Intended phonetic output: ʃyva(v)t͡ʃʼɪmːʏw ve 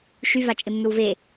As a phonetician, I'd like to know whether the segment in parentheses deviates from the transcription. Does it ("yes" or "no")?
yes